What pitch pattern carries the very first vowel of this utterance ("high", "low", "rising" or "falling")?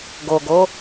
low